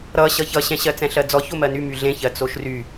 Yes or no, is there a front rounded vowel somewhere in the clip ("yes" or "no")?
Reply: yes